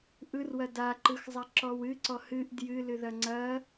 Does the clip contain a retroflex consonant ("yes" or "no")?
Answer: no